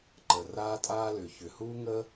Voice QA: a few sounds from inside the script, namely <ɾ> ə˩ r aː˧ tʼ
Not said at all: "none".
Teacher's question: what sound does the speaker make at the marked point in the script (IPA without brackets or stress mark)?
ǃ